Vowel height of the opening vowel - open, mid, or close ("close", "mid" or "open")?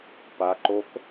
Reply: open